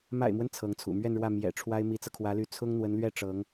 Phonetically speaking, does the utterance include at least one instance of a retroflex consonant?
yes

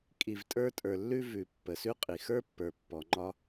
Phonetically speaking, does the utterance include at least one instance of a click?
yes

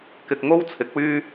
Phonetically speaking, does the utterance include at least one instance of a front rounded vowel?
yes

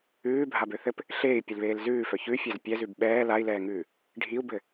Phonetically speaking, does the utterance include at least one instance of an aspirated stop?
no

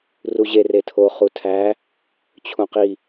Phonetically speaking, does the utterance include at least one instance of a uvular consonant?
yes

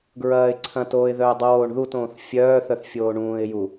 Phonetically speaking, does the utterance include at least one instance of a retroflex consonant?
yes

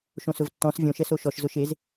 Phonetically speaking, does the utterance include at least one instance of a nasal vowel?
yes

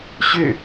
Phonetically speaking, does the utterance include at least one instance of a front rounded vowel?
yes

